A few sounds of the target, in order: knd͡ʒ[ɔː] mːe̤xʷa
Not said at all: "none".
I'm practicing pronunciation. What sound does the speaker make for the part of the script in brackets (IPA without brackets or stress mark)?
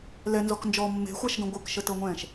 ɔː